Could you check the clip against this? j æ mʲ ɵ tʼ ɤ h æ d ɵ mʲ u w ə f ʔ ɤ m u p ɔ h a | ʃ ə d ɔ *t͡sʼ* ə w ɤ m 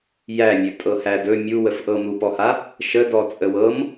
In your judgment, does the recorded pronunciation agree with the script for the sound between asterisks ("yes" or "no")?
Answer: yes